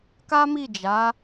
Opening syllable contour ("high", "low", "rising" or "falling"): high